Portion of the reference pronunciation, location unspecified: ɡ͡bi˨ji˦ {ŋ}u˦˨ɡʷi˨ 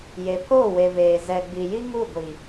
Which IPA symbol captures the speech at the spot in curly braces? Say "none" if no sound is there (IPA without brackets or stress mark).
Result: ŋ